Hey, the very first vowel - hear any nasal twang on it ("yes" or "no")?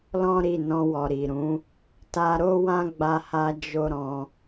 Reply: yes